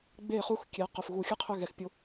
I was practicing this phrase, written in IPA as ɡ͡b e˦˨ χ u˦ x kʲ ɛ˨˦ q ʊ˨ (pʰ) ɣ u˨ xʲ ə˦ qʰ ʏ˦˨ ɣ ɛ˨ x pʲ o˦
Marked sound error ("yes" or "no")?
yes